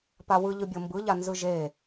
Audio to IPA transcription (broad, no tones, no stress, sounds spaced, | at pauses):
p a w ɯ ʎ ɯ bʲ ɤ m b ɯ ʎ a n z ɯ ʒ e